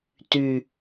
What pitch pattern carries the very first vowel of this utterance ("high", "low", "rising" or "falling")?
low